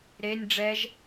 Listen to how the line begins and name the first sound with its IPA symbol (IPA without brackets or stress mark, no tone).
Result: ɾ